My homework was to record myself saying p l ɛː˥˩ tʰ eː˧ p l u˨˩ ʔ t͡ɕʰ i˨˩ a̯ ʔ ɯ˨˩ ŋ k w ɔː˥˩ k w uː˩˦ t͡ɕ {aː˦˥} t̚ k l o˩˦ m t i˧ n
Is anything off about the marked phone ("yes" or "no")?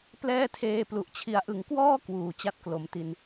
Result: yes